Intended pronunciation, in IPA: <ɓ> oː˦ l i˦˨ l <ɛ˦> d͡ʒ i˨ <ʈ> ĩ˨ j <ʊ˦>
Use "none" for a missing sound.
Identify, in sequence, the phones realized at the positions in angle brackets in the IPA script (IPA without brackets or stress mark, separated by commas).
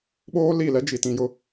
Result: ɓ, ɛ˦, t, ʊ˦